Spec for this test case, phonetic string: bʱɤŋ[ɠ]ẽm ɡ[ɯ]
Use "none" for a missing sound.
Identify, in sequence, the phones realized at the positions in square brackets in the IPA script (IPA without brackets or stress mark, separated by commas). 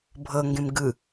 ɡ, ɯ